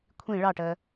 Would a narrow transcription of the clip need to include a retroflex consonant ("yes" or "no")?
yes